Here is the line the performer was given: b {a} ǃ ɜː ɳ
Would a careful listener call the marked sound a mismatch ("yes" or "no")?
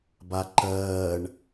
no